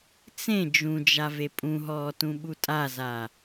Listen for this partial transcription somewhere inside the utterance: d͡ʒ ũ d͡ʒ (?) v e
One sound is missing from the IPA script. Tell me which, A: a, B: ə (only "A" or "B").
A